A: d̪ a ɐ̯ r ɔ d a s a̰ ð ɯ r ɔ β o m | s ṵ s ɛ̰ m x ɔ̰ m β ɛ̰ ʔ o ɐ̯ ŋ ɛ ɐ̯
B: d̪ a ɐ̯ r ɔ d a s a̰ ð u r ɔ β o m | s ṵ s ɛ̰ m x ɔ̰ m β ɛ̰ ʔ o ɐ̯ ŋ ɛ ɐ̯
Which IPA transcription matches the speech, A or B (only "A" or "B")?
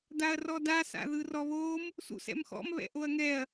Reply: A